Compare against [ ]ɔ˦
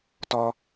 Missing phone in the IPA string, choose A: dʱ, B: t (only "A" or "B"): B